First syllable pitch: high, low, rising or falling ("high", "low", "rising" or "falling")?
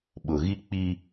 low